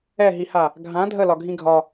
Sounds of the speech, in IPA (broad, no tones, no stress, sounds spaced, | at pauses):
ɛ ɦ i h a | ɡʱ ã dʱ ə l ɒ ɡʱ ĩ ɡʱ ɒ